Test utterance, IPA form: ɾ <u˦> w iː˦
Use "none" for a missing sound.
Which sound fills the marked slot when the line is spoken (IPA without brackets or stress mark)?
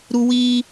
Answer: u˦